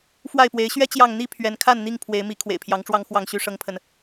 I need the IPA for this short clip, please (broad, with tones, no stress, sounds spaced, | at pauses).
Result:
f w a˥˨ ɪ̯ p w e˨˦ ɪ̯ ɕ ɥ ɛ˦ t͡ɕ j ɑ˥˨ ŋ n̪ i˥˨ pʰ ɥ ɛ˨˦ n kʰ a˥˨ n n̪ i˥˨ ŋ pʰ w e˨˦ ɪ̯ m i˨˦ kʰ w ḛ˨˩ ɪ̯ pʰ j ɑ˨˦ ŋ ʈ͡ʂ w ɑ˦ ŋ x w ɑ˥˨ ŋ ɕ y˦ ʂ ɤ˦ ŋ pʰ ə˨ n